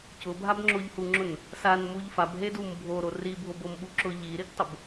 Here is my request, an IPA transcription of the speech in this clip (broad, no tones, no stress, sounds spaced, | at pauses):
c ʊ bʱ a b ŋ͡ǁ o ʎ h u ŋ͡ǁ ʊ n | s a n m u ʎ f a b ɦ e d u m bʱ o ɾ o r i bʱ o b o m ɓ u ǁ ʊ ʎ i ɾ i ɡ tˤ ʊ b